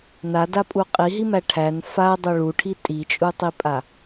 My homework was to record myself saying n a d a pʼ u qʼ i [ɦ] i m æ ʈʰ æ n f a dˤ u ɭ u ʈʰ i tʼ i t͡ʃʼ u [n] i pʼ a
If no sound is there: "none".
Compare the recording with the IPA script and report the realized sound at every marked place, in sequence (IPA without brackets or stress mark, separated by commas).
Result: ɦ, tˤ